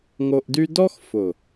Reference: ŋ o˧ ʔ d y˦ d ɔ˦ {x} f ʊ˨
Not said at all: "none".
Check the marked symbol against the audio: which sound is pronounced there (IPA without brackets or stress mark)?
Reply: x